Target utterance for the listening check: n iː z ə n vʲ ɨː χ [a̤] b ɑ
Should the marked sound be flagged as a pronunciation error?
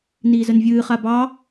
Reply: yes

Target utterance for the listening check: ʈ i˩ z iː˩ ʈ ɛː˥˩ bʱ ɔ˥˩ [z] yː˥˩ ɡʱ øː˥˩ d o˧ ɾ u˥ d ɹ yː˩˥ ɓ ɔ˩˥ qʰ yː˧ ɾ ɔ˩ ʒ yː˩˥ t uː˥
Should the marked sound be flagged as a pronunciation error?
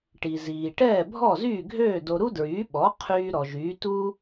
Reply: no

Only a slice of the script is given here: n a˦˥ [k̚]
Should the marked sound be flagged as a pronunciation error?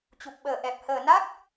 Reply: no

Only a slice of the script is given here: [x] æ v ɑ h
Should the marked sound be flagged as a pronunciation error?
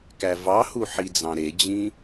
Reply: yes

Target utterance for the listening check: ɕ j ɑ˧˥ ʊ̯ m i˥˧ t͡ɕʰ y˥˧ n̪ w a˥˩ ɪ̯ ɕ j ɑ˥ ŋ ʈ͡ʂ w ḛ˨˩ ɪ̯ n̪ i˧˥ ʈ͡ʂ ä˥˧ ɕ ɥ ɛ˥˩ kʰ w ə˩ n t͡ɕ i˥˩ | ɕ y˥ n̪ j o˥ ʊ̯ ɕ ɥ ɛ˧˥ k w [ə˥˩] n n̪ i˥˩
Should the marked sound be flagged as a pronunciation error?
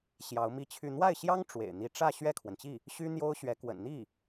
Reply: yes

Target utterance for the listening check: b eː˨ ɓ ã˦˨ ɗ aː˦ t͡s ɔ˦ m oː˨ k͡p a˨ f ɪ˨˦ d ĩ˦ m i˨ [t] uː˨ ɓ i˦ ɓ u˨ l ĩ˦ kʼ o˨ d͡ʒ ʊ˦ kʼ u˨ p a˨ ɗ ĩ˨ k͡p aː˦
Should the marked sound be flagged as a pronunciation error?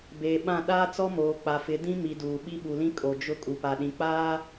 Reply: yes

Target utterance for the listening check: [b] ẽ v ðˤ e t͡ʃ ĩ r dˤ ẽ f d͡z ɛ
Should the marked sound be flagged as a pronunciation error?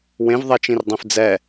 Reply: yes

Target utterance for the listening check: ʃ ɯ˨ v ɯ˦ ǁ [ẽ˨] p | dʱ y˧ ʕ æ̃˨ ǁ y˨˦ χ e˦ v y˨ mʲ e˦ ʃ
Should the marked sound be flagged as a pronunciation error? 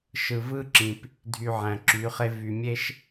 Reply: yes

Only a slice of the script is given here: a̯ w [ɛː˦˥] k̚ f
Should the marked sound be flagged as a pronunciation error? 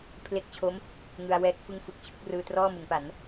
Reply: no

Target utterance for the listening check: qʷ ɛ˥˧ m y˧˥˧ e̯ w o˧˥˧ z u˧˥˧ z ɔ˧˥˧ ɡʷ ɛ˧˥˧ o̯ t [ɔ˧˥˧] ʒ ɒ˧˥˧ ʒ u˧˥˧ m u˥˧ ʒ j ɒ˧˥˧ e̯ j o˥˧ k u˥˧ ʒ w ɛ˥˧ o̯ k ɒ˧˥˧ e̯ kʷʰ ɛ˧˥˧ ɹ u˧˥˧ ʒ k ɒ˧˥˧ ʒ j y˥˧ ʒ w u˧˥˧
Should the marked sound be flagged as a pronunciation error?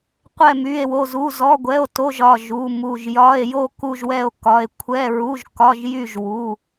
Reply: yes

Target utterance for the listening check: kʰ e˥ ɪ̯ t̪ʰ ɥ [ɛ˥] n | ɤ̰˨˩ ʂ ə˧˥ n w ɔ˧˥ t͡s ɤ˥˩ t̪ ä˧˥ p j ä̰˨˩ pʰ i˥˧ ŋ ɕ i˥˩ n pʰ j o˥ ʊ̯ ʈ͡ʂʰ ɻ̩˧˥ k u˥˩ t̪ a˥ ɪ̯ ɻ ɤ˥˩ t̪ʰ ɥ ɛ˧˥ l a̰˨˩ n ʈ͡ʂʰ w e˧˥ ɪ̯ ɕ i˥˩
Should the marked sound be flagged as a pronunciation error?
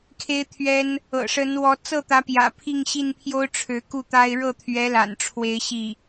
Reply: no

